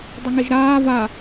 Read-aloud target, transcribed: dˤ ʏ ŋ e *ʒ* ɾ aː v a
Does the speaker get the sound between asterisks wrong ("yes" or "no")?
no